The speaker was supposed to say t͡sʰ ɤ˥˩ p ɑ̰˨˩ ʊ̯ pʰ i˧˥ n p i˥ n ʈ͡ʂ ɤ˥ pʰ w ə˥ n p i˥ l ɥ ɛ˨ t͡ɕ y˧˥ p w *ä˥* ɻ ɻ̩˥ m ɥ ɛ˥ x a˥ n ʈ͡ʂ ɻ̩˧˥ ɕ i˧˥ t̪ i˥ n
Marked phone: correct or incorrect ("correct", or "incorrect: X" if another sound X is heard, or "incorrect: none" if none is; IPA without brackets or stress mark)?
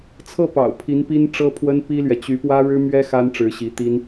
correct